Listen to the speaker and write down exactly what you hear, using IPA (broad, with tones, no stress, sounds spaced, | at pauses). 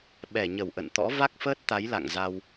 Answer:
ɓ ɛ˧˩ ɲ ə˧˩ w ʔ ə̰˧˨ n t̪ ɔ̰˧˥ v a˦˥ k̚ f əː˦˥ t̚ t̪ a˨˦ j l a̰˧˨ ŋ z a˧ w